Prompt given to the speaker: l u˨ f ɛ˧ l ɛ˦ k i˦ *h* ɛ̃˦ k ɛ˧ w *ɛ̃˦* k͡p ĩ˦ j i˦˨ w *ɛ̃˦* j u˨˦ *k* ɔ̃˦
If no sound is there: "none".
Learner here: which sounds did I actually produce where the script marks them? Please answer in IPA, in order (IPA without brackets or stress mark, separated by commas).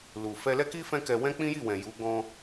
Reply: f, ɛ̃˦, ɛ̃˨, ɡ